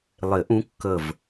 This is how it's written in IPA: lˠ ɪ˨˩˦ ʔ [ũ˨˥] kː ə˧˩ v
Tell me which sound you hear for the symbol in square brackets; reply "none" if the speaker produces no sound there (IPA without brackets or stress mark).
ũ˨˥